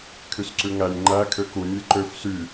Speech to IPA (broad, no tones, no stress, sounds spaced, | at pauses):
kʰ y s ǀ ʉ ŋ æ nʲ ŋ͡ǃ æ kʰ ø k u nʲ ɛ ǃ ø f s y